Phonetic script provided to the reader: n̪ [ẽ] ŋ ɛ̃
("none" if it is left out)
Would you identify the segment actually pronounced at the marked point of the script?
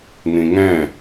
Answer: ĩ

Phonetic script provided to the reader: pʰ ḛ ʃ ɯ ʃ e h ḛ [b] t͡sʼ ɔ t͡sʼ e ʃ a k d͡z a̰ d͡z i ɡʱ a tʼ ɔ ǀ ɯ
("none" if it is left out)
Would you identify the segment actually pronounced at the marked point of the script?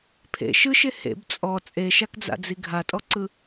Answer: b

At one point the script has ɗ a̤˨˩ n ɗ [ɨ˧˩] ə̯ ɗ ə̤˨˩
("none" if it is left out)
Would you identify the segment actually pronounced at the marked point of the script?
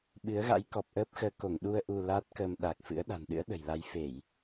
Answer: ɨ̰˧˥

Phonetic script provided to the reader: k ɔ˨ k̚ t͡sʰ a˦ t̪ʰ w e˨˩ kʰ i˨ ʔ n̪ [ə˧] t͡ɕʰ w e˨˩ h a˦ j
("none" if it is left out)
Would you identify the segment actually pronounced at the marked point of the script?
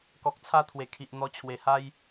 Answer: ɔ˧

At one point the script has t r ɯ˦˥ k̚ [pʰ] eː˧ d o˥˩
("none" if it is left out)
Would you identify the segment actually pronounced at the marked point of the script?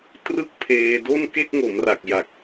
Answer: pʰ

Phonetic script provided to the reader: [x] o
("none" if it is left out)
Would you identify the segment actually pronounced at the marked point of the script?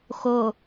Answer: x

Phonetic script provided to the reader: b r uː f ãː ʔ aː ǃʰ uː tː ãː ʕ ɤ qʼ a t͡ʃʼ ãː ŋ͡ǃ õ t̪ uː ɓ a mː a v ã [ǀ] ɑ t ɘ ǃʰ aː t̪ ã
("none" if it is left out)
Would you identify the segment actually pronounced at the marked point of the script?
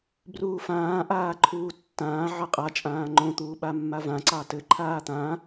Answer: ǀ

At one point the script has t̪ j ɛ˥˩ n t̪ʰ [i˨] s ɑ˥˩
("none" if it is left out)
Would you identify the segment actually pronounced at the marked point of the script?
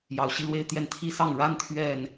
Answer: i˥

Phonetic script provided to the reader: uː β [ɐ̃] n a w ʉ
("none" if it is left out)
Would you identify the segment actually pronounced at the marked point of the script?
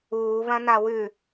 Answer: ɐ̃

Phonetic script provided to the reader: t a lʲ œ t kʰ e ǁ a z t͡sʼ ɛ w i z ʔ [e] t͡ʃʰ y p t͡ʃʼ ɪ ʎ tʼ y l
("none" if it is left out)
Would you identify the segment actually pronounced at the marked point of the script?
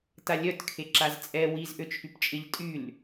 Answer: ø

